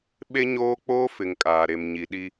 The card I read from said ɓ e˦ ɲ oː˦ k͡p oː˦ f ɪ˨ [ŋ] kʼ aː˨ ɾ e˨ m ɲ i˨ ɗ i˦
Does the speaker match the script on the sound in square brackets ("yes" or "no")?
yes